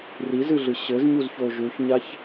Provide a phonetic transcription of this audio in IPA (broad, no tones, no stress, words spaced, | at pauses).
rizɨɮɨ ɕɘzɲuzço ʒuçɲaç